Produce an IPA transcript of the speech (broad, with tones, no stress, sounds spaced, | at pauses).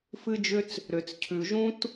f ɨ˥ d͡ʒ ʏ˥ t͡s | ɾ ʏ˩ t͡s cʰ ʉ˩ ʒ ũ˥ t